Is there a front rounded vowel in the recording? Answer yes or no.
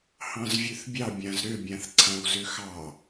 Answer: yes